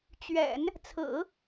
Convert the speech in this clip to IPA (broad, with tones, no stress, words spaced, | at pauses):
t͡ɕɥɛ̰˨˩˦n | t͡sʰɹ̩˨˩˦